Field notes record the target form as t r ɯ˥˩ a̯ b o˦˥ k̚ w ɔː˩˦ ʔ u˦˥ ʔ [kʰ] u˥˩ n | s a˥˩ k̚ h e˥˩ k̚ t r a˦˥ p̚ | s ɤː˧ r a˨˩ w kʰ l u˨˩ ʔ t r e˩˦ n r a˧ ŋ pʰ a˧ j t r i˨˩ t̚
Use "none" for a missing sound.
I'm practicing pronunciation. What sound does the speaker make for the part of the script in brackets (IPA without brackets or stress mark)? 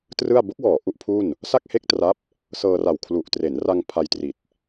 pʰ